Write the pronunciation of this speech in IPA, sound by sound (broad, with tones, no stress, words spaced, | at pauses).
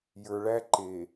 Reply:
jə˞˨ɭæ˦ ǃe˨